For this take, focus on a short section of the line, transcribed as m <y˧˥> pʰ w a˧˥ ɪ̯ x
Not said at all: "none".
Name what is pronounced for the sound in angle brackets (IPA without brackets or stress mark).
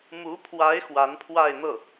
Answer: u˧˥